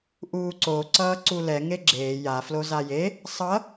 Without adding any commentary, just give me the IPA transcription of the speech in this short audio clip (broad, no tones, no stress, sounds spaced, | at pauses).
ʔ uː ǀ o ǀ ʌː ǀ u l ɛ ŋ e ɡ͡ǁ eː j a f l o z a j e | sˤ ʌ